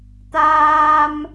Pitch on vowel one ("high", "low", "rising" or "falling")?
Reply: low